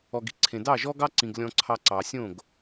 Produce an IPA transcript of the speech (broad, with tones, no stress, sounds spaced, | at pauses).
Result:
ɔ˨ ɡ i̤˦ ǀʰ ẽ˨ d ɑ˦˨ ʒ ɔ˦ ɡ ɑ˦ ǀ ĩ˨ ɡ lʲ ɔ̃˦ ǀʰ ɑ˦ ǀ ɑ˧ sʲ õ˦˨ ɡ